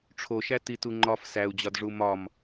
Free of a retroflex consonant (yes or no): no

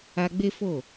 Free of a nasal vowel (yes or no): yes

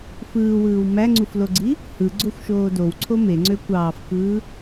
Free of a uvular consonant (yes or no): yes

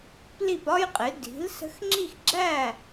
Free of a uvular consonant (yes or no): no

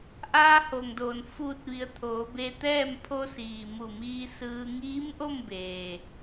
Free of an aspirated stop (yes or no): no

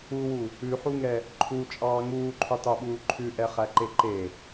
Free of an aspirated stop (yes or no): no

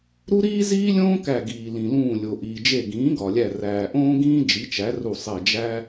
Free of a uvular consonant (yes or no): yes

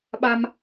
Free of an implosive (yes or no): no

